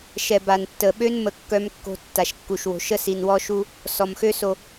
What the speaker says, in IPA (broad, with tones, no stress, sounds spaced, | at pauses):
ʃ ɛ˨ b a˨ n tː ə˨ ɓ ø˦ n m ə˦ kː œ˦ m kː o̤˦ tː a˨ ʃ kː u˨ ʃ w o̤˨ ʃ ə˦ s i˨ n w ɔ˦ ʃ u˦ | s ɔ˨ m x ø˦ s o˨